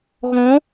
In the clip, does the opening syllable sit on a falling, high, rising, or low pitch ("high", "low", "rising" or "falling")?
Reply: rising